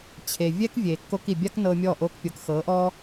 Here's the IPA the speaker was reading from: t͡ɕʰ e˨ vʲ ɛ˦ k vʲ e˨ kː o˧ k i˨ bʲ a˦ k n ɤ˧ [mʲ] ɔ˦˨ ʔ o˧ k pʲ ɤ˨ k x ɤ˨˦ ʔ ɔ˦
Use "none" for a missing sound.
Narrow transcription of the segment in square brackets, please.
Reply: mʲ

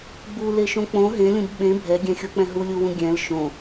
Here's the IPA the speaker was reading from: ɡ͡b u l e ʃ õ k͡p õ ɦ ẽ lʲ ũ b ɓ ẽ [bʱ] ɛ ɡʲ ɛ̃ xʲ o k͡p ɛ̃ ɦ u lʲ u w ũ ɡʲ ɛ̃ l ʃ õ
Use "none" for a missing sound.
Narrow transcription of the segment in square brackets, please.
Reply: bʱ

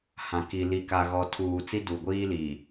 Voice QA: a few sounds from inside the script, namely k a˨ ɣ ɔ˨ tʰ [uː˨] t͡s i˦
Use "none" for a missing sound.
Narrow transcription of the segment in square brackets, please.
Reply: uː˨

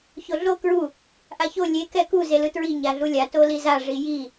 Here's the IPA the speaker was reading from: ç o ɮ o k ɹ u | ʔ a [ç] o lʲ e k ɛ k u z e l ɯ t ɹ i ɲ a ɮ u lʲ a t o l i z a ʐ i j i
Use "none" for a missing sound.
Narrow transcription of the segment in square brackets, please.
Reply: ç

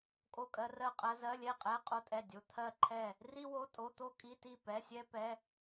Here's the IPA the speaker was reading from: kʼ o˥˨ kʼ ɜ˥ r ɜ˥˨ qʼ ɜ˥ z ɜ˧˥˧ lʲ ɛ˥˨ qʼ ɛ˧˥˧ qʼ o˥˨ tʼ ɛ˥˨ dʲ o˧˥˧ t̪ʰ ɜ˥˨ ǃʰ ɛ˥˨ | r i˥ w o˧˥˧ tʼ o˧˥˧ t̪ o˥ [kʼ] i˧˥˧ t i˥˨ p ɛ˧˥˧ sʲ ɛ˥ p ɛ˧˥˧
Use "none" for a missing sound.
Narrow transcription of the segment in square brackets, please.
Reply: kʼ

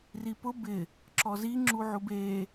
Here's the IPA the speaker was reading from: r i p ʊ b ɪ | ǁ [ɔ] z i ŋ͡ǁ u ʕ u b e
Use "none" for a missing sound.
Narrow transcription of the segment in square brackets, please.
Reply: ɔ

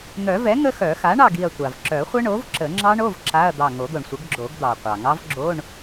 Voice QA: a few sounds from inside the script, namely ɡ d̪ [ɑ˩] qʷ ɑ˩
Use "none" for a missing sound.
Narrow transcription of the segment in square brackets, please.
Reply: ɑ˩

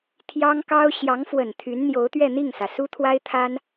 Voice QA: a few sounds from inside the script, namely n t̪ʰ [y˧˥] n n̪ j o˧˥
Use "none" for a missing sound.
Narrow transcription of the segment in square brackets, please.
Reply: y˧˥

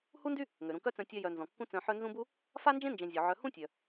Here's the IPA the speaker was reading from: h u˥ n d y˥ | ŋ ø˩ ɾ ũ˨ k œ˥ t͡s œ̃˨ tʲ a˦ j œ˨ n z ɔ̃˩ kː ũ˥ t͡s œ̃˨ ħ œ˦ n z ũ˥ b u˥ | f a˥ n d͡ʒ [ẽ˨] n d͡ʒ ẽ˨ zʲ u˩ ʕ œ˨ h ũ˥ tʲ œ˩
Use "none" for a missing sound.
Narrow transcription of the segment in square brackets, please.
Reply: ẽ˥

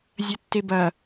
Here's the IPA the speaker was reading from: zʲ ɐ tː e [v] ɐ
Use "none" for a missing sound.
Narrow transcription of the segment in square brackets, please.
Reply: b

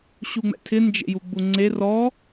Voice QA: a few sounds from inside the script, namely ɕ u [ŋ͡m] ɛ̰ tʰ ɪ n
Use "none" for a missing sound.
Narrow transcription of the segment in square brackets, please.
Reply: ŋ͡m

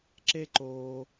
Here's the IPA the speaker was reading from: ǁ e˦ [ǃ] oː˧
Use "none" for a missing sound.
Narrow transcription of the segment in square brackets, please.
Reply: ǃ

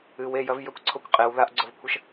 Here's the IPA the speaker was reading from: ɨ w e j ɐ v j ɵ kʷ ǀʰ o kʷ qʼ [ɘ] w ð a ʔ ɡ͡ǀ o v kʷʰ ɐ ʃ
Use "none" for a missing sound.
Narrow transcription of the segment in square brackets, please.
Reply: e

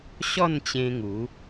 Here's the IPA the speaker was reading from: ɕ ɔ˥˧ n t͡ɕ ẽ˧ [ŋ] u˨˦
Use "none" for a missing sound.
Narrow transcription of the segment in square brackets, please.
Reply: ŋ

